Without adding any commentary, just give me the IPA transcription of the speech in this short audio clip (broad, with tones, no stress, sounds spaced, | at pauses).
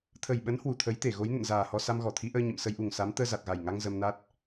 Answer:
t̪ʰ ə˨˩ j ɓ ə˨˦ n h w u˧˩ t̪ʰ ə˨˦ j t̪ e˧˩ ɣ o˨˦ j n ə̰˧˨ n z aː˨˩ h ɔ˧ s a˧ m ɣ ɔ˧˩ t̪ʰ i˨˦ ʔ əː˧ ɲ ə̰˧˨ m s ə˧ j ʔ u˨˩ ŋ s a˨˦ m t̪ əː˧ z a˨˩ t̚ ɣ a˨˩ j ŋ a˧ ŋ z ə˧ m n a˦˥ t̚